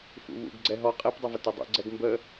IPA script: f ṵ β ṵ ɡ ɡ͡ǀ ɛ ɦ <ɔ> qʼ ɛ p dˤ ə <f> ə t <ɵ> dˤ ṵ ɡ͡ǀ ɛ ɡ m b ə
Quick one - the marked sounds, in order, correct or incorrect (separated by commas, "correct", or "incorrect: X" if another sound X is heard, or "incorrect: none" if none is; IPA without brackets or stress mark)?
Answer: correct, incorrect: v, correct